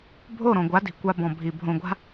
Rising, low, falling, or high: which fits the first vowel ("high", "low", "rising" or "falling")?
falling